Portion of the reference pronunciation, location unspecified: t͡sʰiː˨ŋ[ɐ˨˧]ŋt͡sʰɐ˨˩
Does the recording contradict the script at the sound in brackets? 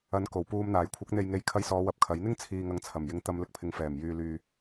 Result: no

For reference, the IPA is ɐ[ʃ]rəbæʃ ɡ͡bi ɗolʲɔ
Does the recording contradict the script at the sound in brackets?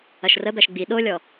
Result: no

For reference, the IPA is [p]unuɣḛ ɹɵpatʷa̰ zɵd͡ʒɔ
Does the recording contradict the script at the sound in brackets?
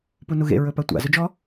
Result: no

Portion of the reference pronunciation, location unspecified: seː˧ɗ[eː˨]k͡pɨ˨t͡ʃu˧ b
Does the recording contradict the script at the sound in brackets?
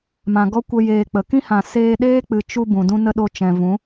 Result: yes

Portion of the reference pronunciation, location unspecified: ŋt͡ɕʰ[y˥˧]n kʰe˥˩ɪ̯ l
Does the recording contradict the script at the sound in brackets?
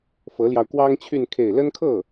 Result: no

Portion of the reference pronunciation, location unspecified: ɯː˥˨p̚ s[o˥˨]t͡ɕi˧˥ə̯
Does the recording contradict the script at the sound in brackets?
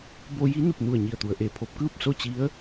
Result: no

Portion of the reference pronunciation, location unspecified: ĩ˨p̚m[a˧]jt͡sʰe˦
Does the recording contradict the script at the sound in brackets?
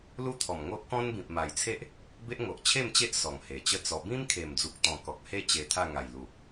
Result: yes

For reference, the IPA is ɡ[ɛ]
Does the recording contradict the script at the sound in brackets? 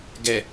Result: no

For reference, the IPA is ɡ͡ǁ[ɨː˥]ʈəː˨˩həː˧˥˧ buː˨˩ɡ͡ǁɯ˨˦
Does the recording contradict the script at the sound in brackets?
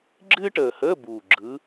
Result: no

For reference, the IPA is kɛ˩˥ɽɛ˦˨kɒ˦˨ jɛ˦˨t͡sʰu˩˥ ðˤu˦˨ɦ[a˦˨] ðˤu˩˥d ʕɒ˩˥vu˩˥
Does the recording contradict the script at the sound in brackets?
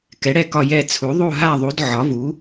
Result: no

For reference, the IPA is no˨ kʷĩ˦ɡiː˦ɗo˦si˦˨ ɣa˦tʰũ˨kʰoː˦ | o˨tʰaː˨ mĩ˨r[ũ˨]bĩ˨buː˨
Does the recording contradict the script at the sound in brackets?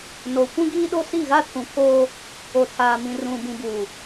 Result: no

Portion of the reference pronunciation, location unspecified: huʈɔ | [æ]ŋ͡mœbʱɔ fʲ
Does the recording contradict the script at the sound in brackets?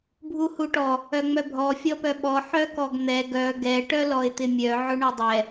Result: yes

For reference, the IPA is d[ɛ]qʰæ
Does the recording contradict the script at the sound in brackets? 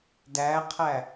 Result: yes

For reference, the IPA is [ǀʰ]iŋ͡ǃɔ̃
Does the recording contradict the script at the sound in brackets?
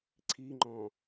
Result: no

